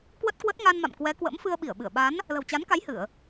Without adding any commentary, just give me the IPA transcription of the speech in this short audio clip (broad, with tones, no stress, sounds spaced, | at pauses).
k w ə˦˥ t̚ k w ə˦˥ t̚ ŋ a˧ n m a̰˧˨ m k w ɛ˨˦ k w ə̰˧˥ m f ɨ˧ ə̯ ɓ i˧˩ ə̯ ɓ ɨ˧˩ ə̯ ɓ a˨˦ n | l ə̤˨˩ w t͡ɕ a˨˦ n k a˨˦ j h ɨ˧˩˨ ə̯